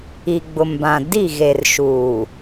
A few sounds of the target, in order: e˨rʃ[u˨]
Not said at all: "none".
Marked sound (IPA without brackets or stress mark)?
uː˨